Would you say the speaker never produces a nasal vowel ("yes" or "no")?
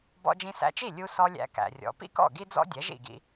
no